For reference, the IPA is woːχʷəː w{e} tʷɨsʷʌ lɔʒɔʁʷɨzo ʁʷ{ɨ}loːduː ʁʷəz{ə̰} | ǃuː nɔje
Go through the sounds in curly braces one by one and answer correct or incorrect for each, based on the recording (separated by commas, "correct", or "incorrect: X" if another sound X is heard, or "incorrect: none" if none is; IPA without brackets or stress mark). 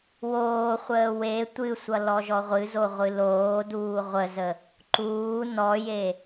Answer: correct, correct, incorrect: ə